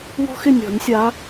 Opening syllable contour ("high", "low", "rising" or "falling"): high